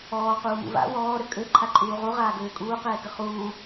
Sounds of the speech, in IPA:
ɔːquːmṵ va̰ wɔːɾø kʼø ǃʰaǃʼuːʁu ʁaːɡøːkʼuː qɛːkəχuː

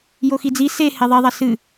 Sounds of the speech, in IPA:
joxid͡zi se heðˤiðˤɐ sɨ

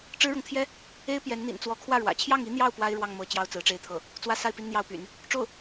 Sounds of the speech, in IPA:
ʈ͡ʂɻ̩˥ɻɤ˨ŋ t̪ʰjɛ˥ | e˥ɪ̯ pjɛ˧˥nn̪ḭ˨˩n t͡swɔ˧˥kʰwä˥˩ɻwä̰˨˩ t͡ɕʰjɑ˥˩ŋi˥n̪jɑ˥˩ʊ̯ pwa˥ɪ̯ ɻwɑ˥˩ŋmɤ˧˥ t͡ɕjɑ˥ʊ̯t͡sɹ̩˧˥ʈ͡ʂe˥ɪ̯t̪ʰɤ˥˩ | t͡swä˥˧ sa˥˩ɪ̯ pi˥nn̪jɑ˥˩ʊ̯py̰˨˩˦n | ʈ͡ʂo˥˩ʊ̯

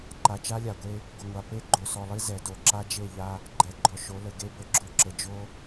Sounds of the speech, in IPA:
ǃa˨t͡ʃa˦lʲa˨ɡʷe˦ | ɡʷə˨ŋʷa˨ pe˦ɡ͡ǃo˨sɔ˨lˠi˦ zɛ˨ do˨ǁa˦d͡ʒe˦˨ ʎa˦ | ɡ͡ǃɛ˨ɡ͡ǃɔ˨ ʃo˨˦lə˨ ɡe˦bə˨ɡ͡ǁo˦ǁə˨ d͡ʒo˦

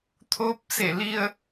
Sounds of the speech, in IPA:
t̪ʰoː˧p̚se˧˩li˧ə̯

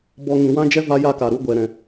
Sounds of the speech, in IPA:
bɔ˧ ŋĩ˨wã˦d͡ʒɛ˦ va˦ja˦ka˨ɾu˦ ɡʷɛ˨ɾɛ̃˨

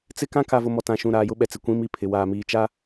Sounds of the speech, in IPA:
t͡sɪ˦kã˦ ka˨vʊ˨mɔ˨ tã˨ʃũ˨ ɾaː˨jʊ˦ɓɛ˨t͡sɪ˨ kʷĩ˦mi˦pʰɪ˨ waː˨miː˨t͡ʃa˦

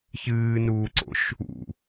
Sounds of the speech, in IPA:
çɨːnuːǀo̰ʃ | ṵ

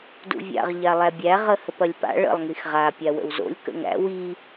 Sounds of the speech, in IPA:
dṵvʲa̰ʁ ʎalˠæbʲæ ʁəhəpɐlʲpa̰ ɭə̰lˠ ŋixʁa pʲawə̰wzo̰lʲ kə̰ŋæ̰ wi

